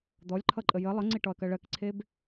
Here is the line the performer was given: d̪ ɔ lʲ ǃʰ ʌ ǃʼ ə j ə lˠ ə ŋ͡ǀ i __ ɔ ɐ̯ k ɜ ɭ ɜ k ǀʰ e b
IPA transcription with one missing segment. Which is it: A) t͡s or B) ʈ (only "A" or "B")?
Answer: B